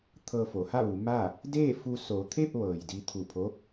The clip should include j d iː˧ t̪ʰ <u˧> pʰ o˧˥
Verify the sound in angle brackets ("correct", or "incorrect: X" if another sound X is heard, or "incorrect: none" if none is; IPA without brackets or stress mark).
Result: incorrect: u˧˩